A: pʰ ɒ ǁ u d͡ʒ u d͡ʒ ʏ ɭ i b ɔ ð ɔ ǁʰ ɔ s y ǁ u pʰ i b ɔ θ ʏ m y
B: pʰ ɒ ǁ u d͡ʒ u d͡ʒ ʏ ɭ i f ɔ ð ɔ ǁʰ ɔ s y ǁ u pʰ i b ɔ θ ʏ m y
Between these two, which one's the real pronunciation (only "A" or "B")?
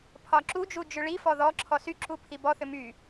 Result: B